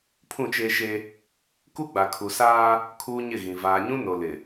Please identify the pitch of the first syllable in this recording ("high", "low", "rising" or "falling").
falling